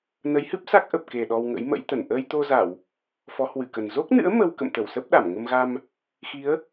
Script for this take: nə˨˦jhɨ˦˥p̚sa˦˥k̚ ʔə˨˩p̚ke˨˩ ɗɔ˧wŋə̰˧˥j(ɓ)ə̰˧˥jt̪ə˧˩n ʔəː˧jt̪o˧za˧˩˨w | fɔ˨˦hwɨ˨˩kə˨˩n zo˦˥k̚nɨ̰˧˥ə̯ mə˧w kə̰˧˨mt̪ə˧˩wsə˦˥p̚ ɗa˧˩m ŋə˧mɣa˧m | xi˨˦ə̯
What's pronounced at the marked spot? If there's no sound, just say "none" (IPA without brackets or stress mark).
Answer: m